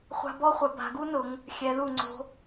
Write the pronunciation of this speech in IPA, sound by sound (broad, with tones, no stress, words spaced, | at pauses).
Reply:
χʷa̤˧bɔ˥˧χʷɛ˩˧ ba̤˩˧ɡu˥nʊ˩˧ŋ | xʲɛ˩˧ðu˧˩ŋ͡ǀo̤˧